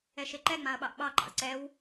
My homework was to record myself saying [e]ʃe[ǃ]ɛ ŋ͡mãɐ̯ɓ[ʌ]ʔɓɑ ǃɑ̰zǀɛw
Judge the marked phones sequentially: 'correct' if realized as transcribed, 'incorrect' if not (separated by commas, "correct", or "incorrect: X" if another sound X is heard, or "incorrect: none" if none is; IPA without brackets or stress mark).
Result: incorrect: ɛ, correct, incorrect: ɑ